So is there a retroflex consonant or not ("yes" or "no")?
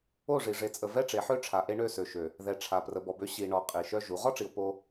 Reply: yes